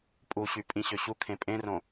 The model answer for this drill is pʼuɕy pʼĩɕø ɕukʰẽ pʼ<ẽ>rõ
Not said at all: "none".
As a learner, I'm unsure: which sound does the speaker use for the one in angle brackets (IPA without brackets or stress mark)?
ẽ